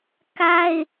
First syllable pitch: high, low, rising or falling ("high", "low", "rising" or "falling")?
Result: high